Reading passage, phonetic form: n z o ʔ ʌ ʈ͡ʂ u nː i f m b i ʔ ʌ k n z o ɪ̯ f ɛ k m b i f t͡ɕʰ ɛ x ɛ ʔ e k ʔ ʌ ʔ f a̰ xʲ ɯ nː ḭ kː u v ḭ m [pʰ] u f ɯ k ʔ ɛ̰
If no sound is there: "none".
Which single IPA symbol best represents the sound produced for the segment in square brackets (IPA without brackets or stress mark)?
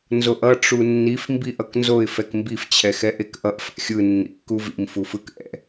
f